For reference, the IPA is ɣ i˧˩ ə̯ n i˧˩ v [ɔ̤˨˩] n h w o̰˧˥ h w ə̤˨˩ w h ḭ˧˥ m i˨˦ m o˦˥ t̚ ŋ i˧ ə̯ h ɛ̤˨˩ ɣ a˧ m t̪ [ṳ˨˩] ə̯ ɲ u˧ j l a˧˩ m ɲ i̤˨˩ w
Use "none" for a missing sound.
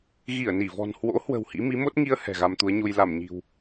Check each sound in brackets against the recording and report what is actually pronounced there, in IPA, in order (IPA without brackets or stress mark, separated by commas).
ɔ̤˨˩, u˨˦